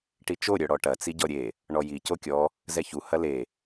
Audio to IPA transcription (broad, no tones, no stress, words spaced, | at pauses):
ʈit͡ʃo ɾʲœɽɔʈɐ t͡siɟɔɾʲe | ɳɔji cokʲɔ | zɛçu hɐle